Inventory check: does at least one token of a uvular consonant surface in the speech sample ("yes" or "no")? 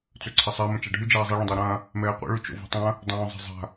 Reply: yes